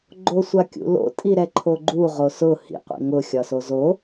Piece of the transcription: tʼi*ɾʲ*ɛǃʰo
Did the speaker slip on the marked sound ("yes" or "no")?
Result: yes